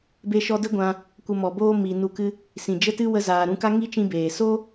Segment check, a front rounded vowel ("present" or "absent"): absent